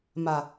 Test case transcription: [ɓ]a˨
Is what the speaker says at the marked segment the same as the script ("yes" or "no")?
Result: no